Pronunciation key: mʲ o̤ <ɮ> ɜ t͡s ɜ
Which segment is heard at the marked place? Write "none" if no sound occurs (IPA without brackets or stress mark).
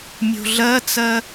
ɮ